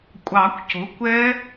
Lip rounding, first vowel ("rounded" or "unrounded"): unrounded